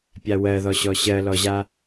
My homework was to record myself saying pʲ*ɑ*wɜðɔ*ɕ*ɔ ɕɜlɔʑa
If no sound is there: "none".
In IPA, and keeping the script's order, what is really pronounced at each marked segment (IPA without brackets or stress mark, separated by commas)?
a, ɕ